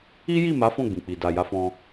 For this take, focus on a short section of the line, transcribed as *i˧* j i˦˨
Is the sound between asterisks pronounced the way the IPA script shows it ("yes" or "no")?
no